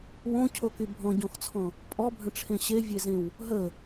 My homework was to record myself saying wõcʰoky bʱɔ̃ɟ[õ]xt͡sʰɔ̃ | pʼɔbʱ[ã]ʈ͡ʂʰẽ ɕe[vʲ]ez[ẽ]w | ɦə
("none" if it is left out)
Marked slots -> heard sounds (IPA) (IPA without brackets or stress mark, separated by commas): ɔ̃, ə̃, vʲ, ẽ